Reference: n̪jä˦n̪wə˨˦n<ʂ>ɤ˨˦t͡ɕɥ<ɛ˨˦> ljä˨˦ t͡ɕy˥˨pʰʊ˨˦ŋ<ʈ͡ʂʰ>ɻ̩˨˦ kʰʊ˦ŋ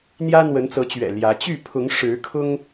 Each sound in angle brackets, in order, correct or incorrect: incorrect, incorrect, incorrect

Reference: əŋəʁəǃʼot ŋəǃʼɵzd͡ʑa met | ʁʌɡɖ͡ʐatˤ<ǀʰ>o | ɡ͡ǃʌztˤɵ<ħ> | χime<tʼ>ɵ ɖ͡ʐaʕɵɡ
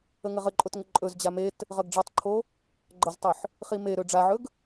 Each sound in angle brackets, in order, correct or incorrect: incorrect, correct, incorrect

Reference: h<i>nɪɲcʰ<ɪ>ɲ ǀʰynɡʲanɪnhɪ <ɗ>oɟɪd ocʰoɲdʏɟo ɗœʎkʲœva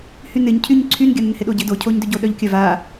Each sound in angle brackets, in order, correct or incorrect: incorrect, incorrect, correct

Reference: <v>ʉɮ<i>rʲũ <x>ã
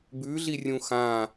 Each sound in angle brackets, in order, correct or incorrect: incorrect, correct, correct

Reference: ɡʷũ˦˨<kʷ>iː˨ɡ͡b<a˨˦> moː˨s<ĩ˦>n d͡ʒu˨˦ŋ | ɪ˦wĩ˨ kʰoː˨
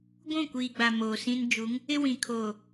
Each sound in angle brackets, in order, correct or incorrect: correct, incorrect, correct

